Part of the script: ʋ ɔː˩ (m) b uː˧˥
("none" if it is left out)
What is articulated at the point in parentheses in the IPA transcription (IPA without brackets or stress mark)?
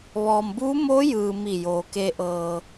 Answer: m